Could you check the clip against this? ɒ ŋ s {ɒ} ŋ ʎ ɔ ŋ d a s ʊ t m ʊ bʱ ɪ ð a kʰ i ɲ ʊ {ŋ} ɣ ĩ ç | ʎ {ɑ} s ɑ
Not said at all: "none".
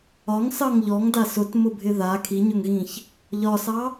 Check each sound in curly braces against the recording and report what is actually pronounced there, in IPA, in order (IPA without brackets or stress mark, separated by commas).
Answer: ɑ, ŋ, ɒ